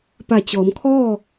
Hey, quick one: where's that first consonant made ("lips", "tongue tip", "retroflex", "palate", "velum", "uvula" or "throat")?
lips